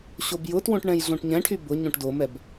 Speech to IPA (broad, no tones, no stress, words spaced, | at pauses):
ɕobjʊtwõʈ ɳɛ̃jɮõʈɲɛ̃ʈʰy bʊ ɲõʈdomɛb